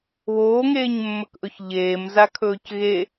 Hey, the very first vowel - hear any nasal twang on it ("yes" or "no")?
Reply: no